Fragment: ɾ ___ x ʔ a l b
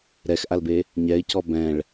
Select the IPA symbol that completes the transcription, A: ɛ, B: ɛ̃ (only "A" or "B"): A